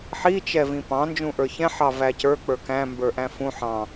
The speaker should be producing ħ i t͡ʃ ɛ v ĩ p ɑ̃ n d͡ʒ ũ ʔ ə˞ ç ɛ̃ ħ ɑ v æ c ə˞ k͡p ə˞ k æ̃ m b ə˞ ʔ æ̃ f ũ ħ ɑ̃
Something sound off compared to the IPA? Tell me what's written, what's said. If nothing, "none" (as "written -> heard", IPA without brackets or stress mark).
none